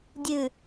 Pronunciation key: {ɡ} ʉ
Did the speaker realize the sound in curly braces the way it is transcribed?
no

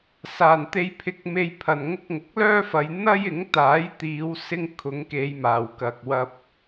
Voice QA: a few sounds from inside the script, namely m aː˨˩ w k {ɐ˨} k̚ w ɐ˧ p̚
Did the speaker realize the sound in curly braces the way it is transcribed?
yes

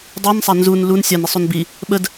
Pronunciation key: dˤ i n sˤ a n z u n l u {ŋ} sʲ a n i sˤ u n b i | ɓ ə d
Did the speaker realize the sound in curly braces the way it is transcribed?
no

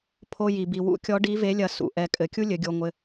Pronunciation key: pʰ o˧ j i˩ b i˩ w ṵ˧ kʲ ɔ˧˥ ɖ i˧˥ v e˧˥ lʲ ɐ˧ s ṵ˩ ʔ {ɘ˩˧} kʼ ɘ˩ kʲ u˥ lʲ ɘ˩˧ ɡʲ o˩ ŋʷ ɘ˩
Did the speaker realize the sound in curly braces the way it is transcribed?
no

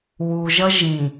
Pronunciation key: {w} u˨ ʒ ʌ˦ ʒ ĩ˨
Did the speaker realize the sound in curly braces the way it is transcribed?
yes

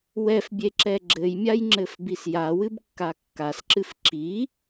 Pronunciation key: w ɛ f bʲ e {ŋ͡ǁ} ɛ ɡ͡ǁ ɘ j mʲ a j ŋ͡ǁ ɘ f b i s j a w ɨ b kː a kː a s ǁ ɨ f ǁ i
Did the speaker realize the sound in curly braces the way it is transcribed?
no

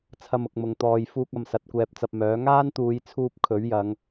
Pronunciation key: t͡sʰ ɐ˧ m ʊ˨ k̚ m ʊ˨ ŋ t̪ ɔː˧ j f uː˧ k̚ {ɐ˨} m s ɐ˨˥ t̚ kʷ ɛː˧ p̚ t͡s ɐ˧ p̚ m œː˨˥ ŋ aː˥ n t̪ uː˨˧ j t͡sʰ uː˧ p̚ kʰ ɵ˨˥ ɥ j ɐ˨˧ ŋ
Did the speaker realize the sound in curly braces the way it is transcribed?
yes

